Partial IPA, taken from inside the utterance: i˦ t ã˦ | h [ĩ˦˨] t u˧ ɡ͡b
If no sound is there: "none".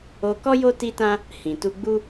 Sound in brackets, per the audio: ĩ˨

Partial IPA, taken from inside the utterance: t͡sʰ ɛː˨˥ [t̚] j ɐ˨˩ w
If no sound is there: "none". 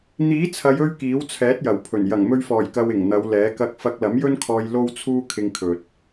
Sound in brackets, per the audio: t̚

